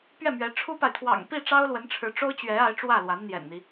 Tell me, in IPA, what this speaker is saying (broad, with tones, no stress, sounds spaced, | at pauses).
p ɥ ɛ˥˩ m ɥ ɛ˧˥ ʈ͡ʂʰ u˥ p a˨ ɪ̯ t̪ʰ w ɑ̰˨˩ ŋ p i˥˩ ʈ͡ʂ ɑ˥ ʊ̯ l w ə˧˥ n ʈ͡ʂʰ ɻ̩˧˥ ʈ͡ʂ o˥ ʊ̯ t͡ɕ ɥ ɛ˧˥ a˧˥ ɪ̯ ʈ͡ʂ w ä˥˩ l w a˧˥ n n̪ j ɛ̰˨˩ n n̪ i˦